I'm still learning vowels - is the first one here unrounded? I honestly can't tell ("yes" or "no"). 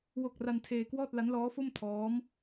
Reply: no